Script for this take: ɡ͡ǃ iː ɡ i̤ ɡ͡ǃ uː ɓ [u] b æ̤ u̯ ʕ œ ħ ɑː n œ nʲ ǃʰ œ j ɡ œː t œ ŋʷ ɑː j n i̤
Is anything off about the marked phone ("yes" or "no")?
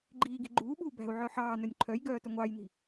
yes